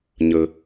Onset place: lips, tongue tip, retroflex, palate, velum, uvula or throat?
palate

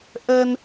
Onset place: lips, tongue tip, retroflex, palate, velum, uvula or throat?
throat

